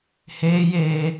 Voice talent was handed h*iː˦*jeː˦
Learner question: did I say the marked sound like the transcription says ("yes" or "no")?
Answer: no